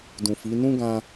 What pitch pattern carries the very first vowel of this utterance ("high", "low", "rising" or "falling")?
low